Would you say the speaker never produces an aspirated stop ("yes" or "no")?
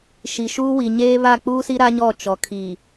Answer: no